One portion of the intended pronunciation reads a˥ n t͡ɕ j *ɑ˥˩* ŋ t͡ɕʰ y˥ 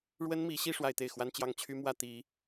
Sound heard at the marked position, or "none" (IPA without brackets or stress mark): ɑ˥˩